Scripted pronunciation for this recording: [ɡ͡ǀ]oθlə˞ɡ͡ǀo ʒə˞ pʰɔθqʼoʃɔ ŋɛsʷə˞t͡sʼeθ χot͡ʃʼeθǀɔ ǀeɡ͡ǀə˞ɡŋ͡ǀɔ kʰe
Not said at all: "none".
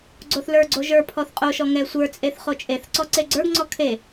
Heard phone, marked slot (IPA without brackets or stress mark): ɡ͡ǀ